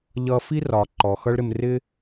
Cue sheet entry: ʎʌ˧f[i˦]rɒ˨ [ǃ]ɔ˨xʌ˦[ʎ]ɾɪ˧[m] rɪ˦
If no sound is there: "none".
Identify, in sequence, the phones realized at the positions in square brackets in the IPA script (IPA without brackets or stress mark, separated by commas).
i˦, ǃ, ɭ, m